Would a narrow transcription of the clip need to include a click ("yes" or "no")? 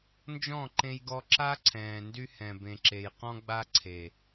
yes